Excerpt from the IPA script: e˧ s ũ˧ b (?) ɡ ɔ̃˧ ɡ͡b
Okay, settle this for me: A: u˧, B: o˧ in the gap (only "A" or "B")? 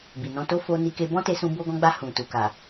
B